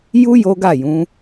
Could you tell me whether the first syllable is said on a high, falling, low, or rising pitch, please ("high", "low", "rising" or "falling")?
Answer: high